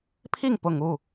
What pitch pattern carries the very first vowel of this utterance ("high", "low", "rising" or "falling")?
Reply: falling